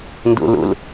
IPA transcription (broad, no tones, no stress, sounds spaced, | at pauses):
n d ṵ l ṵ l